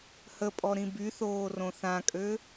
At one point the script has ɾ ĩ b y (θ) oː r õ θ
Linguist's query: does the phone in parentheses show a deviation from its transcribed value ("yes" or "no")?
no